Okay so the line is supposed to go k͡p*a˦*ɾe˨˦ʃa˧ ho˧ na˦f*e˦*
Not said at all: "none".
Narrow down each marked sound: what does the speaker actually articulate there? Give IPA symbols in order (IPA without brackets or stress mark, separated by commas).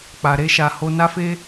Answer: a˨, e˦